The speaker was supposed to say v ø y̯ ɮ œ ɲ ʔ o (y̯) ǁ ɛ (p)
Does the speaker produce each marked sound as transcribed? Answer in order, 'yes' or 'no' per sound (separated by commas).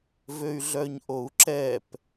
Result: no, yes